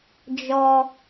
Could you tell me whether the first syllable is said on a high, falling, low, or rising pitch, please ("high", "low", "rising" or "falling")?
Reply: high